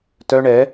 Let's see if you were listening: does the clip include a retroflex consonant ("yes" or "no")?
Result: yes